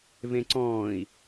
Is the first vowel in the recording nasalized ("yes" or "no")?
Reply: yes